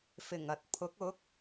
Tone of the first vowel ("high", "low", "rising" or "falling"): low